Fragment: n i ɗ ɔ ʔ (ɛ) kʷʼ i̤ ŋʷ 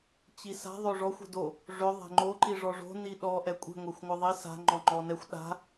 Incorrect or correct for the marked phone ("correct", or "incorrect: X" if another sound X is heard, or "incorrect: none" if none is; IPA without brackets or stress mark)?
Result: correct